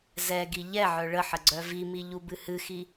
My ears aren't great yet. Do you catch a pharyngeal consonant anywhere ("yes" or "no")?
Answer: yes